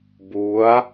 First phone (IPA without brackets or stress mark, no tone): b